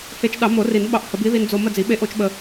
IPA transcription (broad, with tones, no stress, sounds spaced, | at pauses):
h e˧ t͡ʃ ɗ ɑ˨˩˦ m o˨˩˦ r i˨˩˦ n ɓ ɑ˧ ʔ h ə˨˩˦ b i˧˥ ð i˧ n d͡z o˧ m ə˥˧ d͡z i˨˩˦ ɓ e˧˥ ʔ o˧˥ t͡ʃ ɓ ə˧